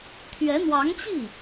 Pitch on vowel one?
rising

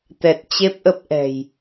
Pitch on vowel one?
low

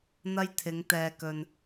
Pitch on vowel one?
high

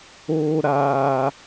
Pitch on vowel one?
high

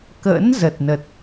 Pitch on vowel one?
rising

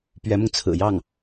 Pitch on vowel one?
rising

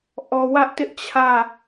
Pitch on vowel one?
low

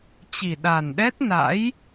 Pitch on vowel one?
low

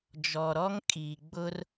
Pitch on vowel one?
low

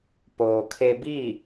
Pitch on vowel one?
low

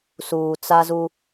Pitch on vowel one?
low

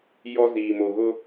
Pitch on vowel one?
high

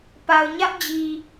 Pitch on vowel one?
low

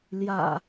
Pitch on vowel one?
low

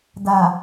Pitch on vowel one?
low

